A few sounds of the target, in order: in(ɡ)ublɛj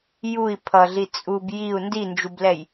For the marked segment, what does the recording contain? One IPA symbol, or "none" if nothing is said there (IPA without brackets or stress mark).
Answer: d͡ʒ